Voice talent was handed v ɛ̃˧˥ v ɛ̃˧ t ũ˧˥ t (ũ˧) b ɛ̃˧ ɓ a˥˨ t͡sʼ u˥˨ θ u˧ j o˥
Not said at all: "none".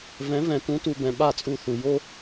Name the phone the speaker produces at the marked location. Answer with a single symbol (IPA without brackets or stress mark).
u˧